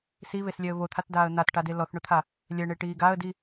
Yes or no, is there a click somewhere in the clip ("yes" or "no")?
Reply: no